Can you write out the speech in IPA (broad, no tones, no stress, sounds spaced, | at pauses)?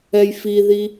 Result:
ɛ j f i ð i